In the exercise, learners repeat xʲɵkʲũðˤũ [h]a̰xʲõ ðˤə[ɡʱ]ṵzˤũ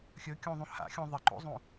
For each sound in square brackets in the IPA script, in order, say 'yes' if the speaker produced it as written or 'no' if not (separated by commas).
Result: yes, no